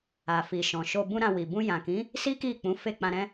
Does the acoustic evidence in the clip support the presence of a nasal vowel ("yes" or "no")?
yes